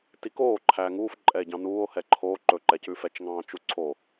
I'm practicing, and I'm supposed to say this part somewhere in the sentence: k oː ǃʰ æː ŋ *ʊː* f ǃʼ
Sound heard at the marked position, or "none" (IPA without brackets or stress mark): uː